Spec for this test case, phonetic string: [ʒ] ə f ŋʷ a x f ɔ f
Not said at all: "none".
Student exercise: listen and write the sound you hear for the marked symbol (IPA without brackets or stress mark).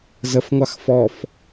z